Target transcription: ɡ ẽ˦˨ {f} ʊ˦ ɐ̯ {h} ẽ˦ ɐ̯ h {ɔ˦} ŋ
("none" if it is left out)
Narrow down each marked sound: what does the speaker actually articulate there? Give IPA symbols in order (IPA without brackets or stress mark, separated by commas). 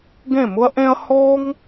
m, ʔ, ɔ˦